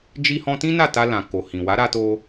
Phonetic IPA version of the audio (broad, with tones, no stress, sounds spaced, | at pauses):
d͡ʒ i˦ h ɔ̃˦ t ĩ˦ n a˦˨ t a˧ l ã˨ k o˨ h ĩ˨ w a˨˦ ɾ a˧ t o˧